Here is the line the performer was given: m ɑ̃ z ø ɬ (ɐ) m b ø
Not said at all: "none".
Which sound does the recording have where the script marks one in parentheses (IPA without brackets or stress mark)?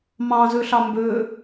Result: ɑ